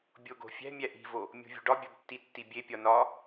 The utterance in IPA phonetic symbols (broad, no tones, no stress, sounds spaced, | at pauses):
bʲ o ɡ o̤ fʲ æ̤ mʲ æ ʔ i̤ v o | mʲ o̤ vʲ ṳ ɖ ɒ bʲ ɒ b tː i tː i bʲ e pʲ ɒ n ɒ